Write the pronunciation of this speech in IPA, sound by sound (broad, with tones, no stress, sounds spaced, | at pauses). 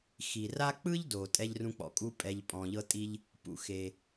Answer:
x i˩ r a˦ k͡p ɯ˥ ʎ d o˩ tʼ ɛ˦ ʎ r ũ˦ k͡p ɔ̰˩ kʼ u˥ pʼ ɛ˨ ʎ pʼ ɔ̃˩ ʎ ɤ˦ tʼ i˦ ʎ | p ṵ˨ x e˩